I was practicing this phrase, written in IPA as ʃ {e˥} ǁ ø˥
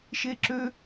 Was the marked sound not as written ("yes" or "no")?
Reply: no